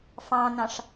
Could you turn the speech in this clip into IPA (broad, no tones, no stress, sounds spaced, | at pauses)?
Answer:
f ɑ̃ n ɑ̃ ʂ